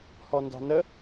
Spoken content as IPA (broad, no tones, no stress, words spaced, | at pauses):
hɔndɑ̤nə